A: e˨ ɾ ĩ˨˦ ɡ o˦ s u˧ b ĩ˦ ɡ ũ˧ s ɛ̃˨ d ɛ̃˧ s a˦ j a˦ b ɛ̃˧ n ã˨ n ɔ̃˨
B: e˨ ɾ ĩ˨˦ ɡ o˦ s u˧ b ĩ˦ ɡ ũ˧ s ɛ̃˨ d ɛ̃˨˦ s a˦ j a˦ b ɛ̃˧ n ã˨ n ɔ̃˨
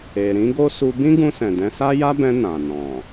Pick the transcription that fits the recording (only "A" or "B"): B